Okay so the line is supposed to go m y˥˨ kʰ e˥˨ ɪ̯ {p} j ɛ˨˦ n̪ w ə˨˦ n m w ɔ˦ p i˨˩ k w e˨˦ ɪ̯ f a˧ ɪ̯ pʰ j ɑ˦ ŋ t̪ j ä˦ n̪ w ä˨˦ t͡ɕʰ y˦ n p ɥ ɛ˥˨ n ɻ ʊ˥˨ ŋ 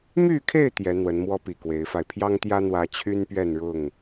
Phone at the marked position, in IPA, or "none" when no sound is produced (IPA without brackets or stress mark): t̪